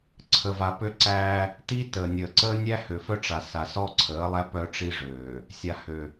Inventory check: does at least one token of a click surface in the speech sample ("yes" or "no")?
yes